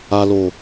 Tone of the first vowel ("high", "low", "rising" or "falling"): low